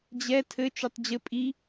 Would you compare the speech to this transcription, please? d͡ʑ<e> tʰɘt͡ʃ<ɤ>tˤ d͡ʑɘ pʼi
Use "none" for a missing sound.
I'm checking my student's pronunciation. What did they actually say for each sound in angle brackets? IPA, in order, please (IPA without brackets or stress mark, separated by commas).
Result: ɛ, o